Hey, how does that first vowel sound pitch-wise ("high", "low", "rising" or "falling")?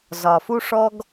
low